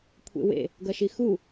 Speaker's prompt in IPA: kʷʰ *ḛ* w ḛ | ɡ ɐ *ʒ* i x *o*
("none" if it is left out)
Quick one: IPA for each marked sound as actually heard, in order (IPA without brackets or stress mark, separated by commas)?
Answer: ḛ, ʃ, u